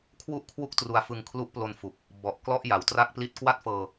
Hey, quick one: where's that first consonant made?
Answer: velum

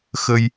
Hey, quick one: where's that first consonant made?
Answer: velum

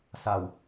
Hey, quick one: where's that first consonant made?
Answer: tongue tip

